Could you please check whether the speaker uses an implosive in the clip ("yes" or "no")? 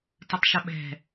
yes